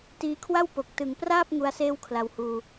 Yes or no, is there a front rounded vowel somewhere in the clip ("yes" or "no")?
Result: no